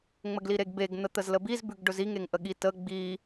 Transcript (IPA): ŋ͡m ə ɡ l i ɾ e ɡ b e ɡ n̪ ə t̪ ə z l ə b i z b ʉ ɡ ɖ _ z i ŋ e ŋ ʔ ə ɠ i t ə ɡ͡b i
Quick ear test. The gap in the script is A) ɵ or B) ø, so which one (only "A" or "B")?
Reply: A